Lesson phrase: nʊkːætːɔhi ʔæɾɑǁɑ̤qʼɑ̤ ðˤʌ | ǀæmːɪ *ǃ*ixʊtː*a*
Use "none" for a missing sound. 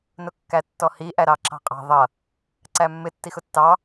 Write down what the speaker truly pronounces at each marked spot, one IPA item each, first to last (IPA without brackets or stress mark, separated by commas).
tː, ɑ